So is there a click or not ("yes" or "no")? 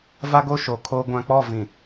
no